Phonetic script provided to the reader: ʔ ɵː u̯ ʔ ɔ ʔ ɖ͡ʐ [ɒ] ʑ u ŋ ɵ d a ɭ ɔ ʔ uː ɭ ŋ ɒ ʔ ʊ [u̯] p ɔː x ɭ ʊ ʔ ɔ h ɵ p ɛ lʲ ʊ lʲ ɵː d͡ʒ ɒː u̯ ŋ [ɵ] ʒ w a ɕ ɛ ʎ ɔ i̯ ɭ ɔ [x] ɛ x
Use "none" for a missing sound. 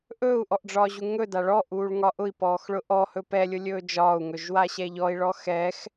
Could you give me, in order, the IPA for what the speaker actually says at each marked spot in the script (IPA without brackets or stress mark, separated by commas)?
ɒː, i̯, ɵ, x